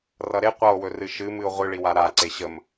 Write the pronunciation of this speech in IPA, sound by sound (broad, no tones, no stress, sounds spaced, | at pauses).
r ʌ ɾ e qʷ ʌ o̯ w ɵ r ɨ ʃ ɨ m ɨ o̯ ʁʷ ɨ ɭ i w a ɾ a ǀ e ɕ ə m